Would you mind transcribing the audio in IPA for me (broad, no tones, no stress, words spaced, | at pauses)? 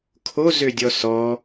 kʰozødʲɔ sɔ